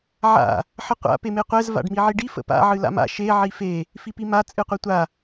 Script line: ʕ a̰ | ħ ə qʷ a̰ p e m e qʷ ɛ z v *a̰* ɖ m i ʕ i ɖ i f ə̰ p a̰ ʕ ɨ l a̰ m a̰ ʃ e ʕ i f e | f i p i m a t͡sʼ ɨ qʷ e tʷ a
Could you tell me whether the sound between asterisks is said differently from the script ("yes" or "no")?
no